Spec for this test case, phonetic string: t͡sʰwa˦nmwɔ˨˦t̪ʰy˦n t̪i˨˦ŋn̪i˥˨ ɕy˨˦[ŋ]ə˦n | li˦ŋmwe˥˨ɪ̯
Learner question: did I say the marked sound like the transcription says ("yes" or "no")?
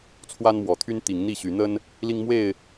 no